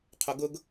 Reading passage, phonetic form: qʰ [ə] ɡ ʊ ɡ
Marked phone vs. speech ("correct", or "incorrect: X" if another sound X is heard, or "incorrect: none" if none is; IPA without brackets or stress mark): incorrect: ʊ